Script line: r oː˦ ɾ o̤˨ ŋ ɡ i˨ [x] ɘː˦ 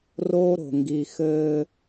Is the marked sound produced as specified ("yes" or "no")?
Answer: yes